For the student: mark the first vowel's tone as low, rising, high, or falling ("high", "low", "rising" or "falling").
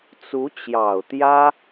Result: rising